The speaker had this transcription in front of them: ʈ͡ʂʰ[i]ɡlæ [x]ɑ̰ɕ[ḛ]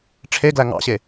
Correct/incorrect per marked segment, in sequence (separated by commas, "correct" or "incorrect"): incorrect, incorrect, incorrect